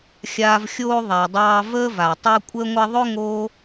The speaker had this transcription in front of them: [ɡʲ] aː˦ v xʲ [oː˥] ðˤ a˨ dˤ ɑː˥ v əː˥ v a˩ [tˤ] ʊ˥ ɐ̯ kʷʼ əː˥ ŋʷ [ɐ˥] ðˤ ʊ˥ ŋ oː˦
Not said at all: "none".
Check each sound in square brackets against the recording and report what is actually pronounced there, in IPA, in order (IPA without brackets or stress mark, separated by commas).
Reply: xʲ, oː˥, tˤ, ɐ˥